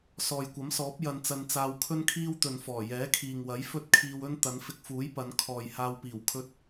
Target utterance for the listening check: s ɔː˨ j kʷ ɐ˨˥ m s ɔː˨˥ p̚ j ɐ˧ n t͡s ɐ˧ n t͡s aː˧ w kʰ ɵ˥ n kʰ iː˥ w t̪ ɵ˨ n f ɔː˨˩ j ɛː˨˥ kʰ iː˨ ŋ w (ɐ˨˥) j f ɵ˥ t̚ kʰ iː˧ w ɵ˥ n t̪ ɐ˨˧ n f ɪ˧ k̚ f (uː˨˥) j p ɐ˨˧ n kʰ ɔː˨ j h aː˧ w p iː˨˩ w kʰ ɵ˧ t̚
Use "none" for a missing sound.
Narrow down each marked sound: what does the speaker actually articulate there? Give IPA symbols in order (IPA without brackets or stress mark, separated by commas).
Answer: ɐ˨˥, uː˨˥